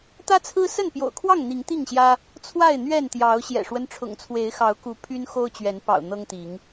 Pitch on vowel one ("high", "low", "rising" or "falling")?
high